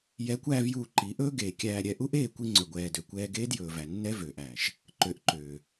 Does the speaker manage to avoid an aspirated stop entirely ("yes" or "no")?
yes